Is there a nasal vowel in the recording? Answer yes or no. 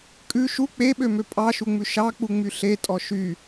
no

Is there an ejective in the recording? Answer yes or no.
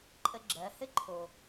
yes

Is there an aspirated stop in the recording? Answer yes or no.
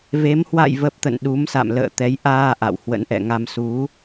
no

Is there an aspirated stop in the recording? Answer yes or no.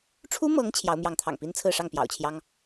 yes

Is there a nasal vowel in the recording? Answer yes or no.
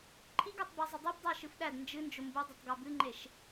no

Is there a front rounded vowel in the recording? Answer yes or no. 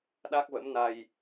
no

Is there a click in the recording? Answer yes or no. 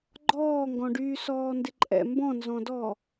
yes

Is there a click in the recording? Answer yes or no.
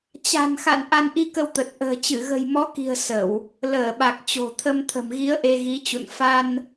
no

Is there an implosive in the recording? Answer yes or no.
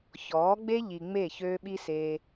yes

